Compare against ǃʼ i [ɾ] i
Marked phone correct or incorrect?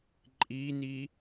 incorrect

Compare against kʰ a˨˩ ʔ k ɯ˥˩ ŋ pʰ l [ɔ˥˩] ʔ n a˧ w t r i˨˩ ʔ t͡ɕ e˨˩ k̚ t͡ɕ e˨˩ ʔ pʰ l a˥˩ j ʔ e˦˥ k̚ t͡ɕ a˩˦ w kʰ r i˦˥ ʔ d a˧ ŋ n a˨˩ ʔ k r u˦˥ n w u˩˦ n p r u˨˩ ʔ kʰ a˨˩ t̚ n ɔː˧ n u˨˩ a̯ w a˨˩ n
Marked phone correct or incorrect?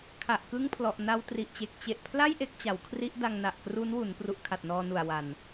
incorrect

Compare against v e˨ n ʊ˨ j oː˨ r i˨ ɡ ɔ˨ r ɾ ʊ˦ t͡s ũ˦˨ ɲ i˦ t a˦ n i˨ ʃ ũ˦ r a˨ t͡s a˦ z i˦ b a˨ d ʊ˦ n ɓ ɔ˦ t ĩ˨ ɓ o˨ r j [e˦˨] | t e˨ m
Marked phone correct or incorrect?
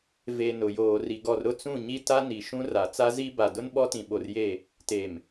correct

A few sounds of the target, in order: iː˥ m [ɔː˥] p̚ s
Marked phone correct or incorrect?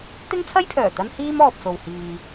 incorrect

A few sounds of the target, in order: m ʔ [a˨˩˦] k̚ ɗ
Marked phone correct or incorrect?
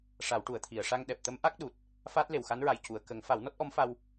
incorrect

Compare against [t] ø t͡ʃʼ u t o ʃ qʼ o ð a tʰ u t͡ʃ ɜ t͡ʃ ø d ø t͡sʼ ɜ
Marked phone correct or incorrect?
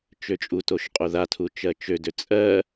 incorrect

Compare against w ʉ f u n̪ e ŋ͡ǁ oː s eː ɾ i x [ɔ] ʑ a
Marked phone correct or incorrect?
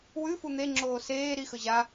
incorrect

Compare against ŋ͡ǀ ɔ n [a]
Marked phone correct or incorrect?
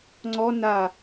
correct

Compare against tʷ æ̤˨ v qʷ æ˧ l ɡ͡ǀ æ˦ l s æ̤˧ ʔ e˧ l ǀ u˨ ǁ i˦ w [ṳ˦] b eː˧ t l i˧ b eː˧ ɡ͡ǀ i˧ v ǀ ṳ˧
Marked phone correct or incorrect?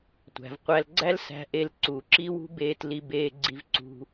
correct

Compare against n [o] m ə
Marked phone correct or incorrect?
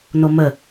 correct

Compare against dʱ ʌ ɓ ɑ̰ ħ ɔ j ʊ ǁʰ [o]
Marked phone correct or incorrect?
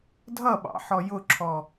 incorrect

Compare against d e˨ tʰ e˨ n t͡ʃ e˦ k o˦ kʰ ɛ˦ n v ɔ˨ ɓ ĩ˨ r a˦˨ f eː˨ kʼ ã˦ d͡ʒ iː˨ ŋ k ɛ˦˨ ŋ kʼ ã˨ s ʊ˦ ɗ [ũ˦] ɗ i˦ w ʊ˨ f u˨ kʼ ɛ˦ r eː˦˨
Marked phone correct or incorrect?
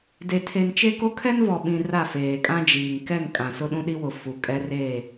correct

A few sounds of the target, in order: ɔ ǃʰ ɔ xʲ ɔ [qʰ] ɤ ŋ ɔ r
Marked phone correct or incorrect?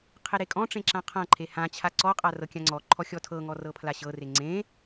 incorrect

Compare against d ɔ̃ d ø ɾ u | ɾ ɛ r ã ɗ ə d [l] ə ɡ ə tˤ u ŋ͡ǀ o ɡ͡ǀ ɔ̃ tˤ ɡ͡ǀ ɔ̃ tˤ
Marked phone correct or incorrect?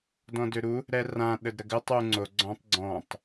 incorrect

